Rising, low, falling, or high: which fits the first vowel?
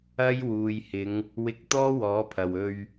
high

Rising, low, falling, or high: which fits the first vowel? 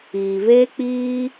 low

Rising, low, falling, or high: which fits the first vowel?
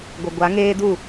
low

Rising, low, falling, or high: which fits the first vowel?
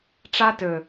high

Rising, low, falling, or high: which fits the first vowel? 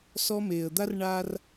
high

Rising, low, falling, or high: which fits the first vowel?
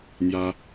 high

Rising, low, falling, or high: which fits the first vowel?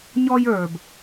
high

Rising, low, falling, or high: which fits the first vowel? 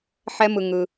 high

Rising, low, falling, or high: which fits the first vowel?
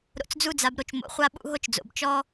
low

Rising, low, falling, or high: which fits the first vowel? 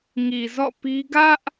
low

